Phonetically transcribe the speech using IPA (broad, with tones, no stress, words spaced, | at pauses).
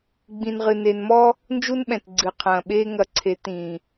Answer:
ɡ͡bĩ˨nʁɨ˨ne˨nmɔ˦ | nd͡ʒu˦nɓɛ̃˨t ɡ͡ǀɨ˨qʰɐ̃ː˨ ɓeː˦ŋɐ˧ǀʰe˨˦ tĩ˨